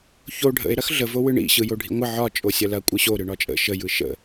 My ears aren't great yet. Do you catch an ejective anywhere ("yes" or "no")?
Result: yes